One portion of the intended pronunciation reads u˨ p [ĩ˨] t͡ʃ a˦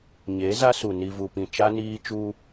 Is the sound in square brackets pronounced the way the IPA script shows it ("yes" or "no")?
yes